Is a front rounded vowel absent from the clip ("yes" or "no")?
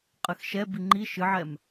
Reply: yes